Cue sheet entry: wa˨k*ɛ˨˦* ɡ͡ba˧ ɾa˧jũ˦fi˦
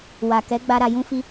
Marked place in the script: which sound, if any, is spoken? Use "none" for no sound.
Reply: ɛ˨˦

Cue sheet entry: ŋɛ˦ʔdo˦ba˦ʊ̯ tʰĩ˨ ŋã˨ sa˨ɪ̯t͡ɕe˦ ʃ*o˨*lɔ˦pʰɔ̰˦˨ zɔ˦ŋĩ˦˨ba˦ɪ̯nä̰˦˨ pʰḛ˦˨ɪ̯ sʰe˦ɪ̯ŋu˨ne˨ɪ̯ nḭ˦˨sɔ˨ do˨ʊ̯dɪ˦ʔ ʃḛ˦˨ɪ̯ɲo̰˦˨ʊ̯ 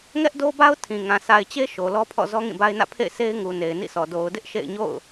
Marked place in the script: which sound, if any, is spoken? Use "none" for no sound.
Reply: o˨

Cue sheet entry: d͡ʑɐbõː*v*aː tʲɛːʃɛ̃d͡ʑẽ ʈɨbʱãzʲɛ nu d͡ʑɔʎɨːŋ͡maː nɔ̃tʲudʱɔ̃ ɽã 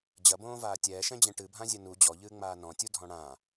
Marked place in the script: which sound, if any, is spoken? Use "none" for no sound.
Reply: v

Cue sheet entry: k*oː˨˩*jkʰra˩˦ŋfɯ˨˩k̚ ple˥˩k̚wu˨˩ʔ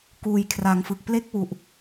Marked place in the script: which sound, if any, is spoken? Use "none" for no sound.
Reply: uː˨˩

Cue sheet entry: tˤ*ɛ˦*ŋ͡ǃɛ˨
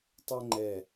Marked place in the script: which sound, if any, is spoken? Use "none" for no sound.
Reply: ɛ˦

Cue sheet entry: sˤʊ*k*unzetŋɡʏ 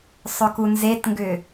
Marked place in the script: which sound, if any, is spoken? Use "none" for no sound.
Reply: k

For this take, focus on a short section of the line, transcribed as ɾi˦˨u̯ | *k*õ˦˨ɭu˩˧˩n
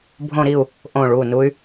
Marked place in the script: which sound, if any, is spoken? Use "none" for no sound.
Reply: ʔ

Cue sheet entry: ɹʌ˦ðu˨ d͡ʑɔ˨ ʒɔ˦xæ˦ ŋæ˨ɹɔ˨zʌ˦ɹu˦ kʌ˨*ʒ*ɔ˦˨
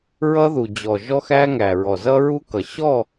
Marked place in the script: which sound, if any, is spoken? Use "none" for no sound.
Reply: ɕ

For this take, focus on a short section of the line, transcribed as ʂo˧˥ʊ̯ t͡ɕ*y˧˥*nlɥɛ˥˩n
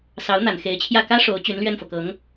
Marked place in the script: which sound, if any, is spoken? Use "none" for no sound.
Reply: y˧˥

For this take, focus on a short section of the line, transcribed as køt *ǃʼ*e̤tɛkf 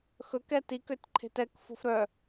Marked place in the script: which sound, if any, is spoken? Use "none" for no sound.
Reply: ǃʰ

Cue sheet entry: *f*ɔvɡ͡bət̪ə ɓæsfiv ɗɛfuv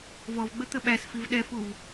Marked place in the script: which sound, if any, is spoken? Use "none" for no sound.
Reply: v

